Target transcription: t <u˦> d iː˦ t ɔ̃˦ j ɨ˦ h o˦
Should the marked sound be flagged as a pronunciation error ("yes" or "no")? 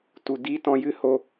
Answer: yes